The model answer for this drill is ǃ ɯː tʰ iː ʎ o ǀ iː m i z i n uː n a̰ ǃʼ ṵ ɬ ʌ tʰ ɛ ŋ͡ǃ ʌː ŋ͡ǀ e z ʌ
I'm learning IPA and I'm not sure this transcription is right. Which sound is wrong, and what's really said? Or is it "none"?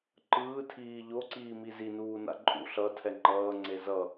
none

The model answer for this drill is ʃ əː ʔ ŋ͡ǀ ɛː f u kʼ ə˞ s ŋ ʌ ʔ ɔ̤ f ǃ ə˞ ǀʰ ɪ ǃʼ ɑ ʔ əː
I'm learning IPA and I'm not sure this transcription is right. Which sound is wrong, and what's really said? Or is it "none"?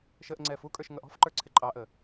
s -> ʃ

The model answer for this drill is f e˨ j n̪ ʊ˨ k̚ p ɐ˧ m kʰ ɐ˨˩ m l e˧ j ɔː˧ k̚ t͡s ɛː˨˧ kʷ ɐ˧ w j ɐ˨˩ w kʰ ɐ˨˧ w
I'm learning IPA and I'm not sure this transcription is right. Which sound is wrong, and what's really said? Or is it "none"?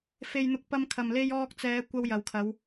none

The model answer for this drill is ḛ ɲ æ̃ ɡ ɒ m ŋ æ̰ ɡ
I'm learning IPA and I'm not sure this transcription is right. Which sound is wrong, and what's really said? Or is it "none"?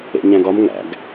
none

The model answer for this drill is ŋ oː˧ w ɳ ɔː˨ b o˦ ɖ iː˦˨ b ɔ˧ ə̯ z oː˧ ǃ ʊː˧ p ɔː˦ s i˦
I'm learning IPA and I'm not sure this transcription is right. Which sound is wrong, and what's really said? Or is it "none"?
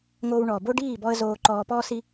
ʊː˧ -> ɔː˧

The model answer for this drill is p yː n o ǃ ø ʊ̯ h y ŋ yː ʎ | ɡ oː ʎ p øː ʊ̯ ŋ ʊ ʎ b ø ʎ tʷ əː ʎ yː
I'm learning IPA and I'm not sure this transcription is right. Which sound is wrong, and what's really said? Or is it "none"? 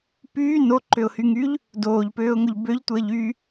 ɡ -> d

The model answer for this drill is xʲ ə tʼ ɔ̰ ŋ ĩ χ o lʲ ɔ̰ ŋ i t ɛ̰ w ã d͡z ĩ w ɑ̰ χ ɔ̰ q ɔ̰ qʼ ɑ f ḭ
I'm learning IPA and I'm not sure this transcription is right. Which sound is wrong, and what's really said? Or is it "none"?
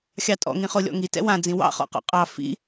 ə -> ɑ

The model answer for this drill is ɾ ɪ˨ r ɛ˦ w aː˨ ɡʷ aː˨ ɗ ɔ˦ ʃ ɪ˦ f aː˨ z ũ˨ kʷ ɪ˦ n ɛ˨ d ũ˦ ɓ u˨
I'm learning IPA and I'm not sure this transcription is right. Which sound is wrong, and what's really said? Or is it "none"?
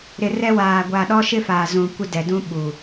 n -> d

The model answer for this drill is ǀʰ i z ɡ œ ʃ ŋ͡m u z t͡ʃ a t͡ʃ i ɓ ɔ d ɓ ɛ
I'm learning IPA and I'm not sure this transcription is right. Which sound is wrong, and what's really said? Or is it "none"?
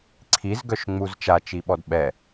none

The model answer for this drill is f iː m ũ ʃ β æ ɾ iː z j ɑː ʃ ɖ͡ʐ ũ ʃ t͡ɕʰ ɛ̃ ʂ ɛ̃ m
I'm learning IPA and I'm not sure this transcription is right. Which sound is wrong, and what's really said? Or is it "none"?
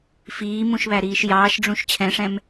z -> ʃ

